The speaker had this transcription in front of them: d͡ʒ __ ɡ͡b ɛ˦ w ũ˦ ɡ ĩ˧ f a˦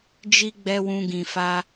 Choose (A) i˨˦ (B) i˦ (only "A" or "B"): B